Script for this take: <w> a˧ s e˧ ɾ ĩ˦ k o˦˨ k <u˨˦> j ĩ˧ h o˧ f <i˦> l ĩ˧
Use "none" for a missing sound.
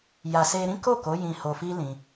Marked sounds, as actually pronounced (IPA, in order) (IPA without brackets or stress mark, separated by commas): j, o˨˦, i˦